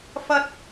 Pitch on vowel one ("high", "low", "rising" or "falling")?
high